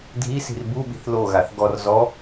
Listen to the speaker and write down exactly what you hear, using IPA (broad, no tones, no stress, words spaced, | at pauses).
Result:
dʱisi̤r buɓi̤θ loɣaθ ɡɔr zɔ